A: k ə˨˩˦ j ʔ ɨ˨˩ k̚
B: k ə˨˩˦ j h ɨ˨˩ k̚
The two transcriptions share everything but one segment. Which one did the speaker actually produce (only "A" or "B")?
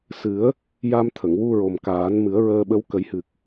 B